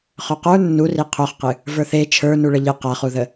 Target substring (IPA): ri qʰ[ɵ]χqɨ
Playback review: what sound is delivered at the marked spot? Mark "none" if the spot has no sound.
œ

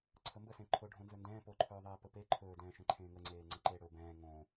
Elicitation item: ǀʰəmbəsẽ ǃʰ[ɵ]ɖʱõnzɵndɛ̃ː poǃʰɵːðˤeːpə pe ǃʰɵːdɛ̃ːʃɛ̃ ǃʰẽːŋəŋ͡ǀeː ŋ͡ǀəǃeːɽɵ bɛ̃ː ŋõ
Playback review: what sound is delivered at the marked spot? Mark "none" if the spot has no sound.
o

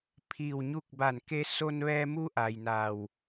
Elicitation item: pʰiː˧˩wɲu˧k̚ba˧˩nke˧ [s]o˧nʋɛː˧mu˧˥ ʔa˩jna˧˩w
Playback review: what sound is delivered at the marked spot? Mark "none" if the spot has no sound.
s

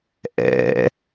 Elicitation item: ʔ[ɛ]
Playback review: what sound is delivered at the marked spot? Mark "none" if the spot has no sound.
ɛ̰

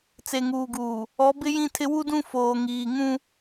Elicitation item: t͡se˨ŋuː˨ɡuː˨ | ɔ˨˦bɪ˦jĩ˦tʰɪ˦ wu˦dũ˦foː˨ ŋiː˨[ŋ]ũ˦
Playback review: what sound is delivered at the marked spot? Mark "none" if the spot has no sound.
ŋ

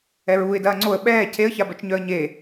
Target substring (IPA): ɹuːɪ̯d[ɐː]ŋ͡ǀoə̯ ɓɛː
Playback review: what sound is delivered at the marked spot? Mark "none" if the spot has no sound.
ɐː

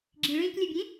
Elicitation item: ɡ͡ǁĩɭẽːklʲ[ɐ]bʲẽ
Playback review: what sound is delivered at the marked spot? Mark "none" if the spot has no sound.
ɐ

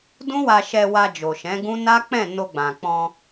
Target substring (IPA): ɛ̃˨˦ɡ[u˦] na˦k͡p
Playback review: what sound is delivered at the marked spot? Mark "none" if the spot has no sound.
ũ˦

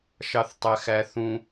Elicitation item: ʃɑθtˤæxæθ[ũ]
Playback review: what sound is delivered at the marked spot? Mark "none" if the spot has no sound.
ũ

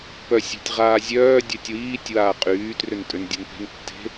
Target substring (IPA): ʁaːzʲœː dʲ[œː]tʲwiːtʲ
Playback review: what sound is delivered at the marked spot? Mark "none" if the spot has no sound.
œ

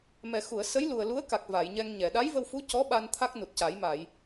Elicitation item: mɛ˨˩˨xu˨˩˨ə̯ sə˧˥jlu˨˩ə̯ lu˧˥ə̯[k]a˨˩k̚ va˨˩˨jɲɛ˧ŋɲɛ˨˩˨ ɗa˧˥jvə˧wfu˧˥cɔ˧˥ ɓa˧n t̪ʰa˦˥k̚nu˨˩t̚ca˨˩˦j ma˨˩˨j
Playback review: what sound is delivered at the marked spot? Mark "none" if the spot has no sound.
k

